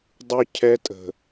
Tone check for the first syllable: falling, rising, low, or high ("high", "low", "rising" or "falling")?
high